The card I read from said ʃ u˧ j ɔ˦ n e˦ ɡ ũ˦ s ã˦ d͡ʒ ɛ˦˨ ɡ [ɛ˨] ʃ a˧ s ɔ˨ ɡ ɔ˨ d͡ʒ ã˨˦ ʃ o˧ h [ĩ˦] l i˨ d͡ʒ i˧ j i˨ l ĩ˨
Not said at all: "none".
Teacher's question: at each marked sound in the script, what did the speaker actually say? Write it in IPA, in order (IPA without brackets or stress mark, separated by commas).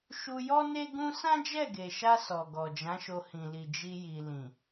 e˨, ĩ˨